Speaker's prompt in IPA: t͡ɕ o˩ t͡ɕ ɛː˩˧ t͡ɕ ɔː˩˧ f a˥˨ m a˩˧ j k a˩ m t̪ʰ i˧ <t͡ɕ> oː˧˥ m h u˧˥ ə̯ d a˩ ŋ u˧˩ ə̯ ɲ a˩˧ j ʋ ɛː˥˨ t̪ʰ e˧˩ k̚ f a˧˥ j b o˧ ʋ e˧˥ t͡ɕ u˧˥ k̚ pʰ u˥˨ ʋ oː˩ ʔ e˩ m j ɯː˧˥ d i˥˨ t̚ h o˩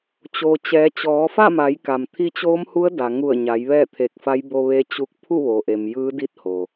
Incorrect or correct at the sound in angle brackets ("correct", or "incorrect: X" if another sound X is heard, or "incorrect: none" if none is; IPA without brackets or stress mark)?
correct